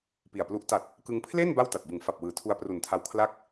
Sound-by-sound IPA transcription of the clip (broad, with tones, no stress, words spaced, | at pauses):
pi˨˩a̯plu˦˥ʔ ta˨˩t̚ | kɯ˧ŋ pʰle˥˩n ba˥˩wta˨˩t̚bɯ˩˦ŋ fa˨˩p̚wɯː˩˦ tʰu˧a̯pru˨˩ntʰa˧w kʰla˥˩k̚